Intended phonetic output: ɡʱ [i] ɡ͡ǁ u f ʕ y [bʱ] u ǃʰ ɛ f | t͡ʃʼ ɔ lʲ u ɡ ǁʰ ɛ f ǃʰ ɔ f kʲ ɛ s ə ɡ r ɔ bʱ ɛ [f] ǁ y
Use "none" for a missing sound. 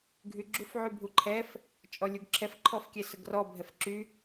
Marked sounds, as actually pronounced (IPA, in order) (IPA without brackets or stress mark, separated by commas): y, bʱ, f